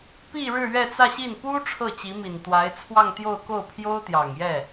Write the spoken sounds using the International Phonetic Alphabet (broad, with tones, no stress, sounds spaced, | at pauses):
p i˥˧ ɻ ɻ̩˥˧ ɥ ɛ˥˧ t͡s ä˥˧ ɕ i˥˩ n p u˥ ʈ͡ʂʰ ɤ˥˩ t͡ɕ i˧˥ m i˨˩ n t̪ w a˧˥ ɪ̯ t͡sʰ w ɑ˥˧ ŋ t̪ j o˥˧ ʊ̯ k o˥˩ ʊ̯ pʰ j o˥ ʊ̯ t̪ j ɑ˨˩ ŋ j ɛ˥˩